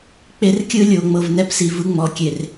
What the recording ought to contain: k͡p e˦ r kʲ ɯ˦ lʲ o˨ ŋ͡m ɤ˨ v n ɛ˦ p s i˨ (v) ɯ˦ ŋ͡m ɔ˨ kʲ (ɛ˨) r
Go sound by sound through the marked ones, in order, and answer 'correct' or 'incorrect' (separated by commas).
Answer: correct, incorrect